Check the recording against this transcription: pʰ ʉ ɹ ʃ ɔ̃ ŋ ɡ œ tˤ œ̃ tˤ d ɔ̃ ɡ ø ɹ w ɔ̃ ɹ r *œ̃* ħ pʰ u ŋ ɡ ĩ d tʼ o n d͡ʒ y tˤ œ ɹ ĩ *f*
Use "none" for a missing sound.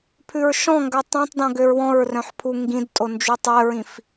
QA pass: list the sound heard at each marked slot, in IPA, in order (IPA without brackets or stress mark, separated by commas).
œ̃, f